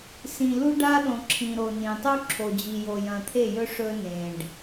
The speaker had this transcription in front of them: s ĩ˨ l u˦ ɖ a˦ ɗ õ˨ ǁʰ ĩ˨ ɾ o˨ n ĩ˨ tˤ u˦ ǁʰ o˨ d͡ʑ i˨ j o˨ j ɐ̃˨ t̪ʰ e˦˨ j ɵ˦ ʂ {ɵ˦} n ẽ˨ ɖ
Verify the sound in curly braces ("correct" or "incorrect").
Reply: correct